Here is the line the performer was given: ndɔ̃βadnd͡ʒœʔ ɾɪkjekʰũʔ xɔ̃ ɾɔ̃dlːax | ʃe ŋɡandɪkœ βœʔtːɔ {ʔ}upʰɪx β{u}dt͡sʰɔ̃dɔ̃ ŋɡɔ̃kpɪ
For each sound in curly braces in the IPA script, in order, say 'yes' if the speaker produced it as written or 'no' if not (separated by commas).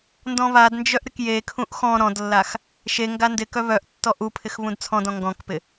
yes, no